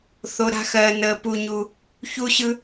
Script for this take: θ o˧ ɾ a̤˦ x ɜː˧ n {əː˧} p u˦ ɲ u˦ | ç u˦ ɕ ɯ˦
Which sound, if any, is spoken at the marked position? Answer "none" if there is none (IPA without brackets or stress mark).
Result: əː˧